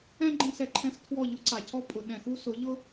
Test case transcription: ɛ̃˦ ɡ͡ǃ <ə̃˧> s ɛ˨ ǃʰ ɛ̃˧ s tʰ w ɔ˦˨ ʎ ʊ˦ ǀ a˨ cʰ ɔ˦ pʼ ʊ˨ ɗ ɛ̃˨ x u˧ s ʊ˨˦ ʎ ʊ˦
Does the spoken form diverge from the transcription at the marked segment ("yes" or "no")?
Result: yes